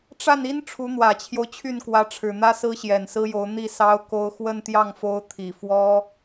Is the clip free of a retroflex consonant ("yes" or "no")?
no